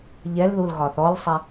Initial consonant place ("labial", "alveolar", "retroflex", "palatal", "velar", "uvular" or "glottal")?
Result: palatal